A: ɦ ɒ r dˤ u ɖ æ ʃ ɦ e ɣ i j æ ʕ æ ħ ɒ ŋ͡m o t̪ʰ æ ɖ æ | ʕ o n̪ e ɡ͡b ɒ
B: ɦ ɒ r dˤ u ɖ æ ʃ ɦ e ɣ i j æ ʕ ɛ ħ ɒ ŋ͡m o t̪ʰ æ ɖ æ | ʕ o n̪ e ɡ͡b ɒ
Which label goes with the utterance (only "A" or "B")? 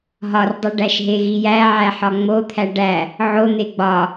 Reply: A